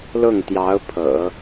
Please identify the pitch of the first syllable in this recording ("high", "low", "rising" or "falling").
falling